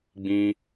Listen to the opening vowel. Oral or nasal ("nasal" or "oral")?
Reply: nasal